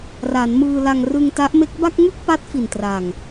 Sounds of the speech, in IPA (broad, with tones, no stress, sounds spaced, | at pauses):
r a˩˦ n m ɯː˧ l a˧ ŋ r ɯ˧ ŋ t a˦˥ ʔ m e˦˥ k̚ b a˥˩ k̚ ŋ ɯ˥˩ k̚ p a˦˥ t̚ f i˨˩ n t r a˨˩ ŋ